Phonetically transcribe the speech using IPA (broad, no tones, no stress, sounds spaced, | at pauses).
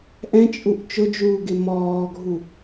ʔ ɛ̃ t͡ʃʼ u ʔ t͡ʃ ʊ d͡ʒ uː ɡ ɪ m ɔː ɡʱ u